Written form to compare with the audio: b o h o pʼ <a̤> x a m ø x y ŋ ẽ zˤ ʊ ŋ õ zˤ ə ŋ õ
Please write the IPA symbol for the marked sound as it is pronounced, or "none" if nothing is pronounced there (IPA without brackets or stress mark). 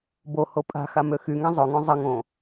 a̤